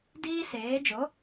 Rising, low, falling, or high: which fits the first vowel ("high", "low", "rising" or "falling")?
high